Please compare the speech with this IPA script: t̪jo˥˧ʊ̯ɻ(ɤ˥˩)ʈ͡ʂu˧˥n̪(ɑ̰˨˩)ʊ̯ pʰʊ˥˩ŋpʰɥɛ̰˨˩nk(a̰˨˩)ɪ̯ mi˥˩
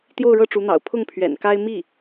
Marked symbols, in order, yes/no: yes, yes, no

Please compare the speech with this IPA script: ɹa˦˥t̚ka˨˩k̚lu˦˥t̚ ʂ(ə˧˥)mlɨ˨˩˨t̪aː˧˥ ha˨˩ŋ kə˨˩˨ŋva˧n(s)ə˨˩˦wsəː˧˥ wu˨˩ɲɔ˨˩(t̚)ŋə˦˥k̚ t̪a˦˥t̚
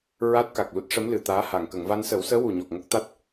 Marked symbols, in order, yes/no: yes, yes, no

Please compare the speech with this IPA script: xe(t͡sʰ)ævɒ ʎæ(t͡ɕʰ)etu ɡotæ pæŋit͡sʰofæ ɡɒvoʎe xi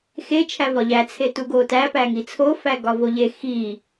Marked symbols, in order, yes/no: no, no

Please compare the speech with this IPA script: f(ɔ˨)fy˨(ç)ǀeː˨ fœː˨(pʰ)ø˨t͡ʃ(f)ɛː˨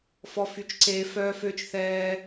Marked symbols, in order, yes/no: yes, no, no, no

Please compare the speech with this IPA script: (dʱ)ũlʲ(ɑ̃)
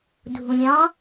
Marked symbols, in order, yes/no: yes, yes

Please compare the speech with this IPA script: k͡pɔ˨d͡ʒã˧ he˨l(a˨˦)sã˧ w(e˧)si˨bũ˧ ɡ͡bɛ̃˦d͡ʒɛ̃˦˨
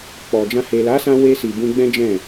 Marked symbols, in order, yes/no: yes, yes

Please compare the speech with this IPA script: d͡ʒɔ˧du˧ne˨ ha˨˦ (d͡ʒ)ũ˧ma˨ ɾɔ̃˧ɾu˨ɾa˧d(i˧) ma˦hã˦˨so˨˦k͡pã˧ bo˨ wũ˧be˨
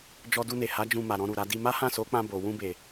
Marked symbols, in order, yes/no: yes, yes

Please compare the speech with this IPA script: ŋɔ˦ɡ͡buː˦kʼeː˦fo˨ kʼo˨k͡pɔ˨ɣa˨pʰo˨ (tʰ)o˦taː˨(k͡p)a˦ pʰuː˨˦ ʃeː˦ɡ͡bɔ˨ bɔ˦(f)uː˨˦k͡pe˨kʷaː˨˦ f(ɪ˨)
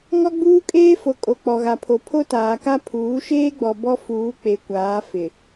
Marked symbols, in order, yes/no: no, no, yes, yes

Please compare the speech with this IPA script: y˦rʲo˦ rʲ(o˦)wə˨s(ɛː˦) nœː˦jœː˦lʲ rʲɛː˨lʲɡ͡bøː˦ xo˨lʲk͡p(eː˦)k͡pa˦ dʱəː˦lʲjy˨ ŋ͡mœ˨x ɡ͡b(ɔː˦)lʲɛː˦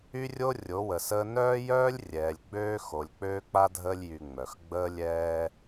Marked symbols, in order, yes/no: no, no, no, no

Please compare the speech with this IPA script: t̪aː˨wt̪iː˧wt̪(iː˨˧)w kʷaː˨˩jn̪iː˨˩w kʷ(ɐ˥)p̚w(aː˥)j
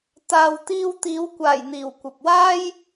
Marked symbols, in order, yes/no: yes, no, yes

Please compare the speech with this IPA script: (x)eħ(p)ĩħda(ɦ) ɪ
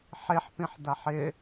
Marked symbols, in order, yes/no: no, yes, no

